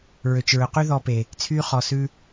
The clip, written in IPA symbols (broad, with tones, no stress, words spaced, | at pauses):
ɹø˨t͡ʃɹɵ˨ qy˦ðɔ˧pe˨ | t͡sʰy˧χɔ˨ sʉ˦